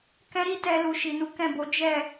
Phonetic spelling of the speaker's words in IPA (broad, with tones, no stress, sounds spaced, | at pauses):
k ɛ̃˦ ɾ i˦ t ɛ˧ l u˨ ʃ i˨ n u˨˦ k ɛ̃˦˨ b o˨˦ d͡ʒ ɛ˦˨